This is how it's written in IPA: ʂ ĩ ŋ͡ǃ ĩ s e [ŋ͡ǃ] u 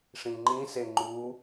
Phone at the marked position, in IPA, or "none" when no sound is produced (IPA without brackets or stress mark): ŋ͡ǃ